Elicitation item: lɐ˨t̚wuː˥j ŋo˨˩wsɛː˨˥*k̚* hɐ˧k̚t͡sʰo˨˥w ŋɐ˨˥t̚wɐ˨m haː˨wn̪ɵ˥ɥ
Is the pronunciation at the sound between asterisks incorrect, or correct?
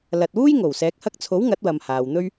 correct